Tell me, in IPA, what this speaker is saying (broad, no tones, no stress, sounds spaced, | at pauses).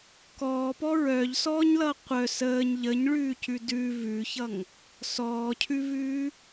k ɔː p ɔ ɹ œː ʎ s ɔː ɲ l ʌː qʷ œ s əː ɲ ʎ ə ɲ ɭ ʉː c ʉ d ʉ v ʉ ç ʌ ŋ | s ɔː cʰ ʉ v ʉː